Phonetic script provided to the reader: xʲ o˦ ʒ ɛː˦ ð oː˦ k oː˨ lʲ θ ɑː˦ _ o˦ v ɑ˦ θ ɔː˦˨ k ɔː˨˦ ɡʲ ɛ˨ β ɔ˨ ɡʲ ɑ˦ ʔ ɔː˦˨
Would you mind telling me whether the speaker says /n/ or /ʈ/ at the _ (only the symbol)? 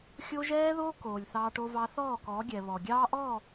ʈ